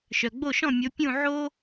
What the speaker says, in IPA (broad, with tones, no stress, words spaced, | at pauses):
ʃœ˩ɡ͡bo˥˩ʃɔ̃˥˩ mʲo˩˥pʲũ˥˩ ʕo˥